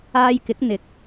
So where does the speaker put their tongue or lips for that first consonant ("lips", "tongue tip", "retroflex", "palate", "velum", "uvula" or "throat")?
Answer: palate